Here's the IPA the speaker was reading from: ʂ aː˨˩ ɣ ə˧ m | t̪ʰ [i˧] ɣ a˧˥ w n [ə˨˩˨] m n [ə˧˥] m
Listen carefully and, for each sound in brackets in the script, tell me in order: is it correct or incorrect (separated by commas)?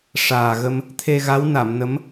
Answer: incorrect, incorrect, correct